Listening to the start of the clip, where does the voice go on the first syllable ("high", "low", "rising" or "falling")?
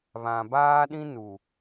low